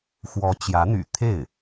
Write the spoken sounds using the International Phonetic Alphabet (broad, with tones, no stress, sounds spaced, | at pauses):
x w ɔ˧˥ t͡ɕ j ä˧˥ n̪ y̰˨˩ t̪ʰ e˥˩ ɪ̯